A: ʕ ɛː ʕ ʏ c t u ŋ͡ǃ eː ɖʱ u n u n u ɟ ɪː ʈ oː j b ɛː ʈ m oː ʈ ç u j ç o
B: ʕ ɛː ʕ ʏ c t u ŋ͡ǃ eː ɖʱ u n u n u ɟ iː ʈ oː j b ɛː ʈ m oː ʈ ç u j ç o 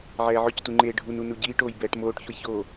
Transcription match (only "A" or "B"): B